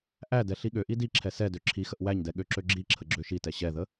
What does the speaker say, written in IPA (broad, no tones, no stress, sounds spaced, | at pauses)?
ʔ æ d ɛ ɬ i ɠ ø ʔ i d i ǁʰ ɛ s ɛ d ø ǁʰ i x ə ʔ w æ ɲ d ɛ ɠ ø ǁ ø ɡ͡ǁ i ǁʰ ə ɡ͡ǁ ø ʃ i t ɛ ɕ ɛ ð ə